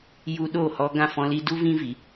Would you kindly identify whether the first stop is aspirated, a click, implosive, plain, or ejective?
implosive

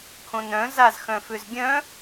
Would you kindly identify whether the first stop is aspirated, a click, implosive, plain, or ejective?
aspirated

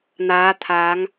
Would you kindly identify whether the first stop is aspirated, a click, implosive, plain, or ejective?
aspirated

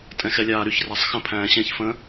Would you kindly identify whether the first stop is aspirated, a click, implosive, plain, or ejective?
ejective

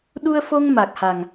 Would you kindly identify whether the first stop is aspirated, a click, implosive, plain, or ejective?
implosive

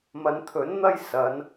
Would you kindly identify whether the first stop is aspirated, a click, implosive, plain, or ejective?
aspirated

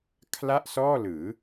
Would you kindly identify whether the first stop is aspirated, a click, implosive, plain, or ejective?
aspirated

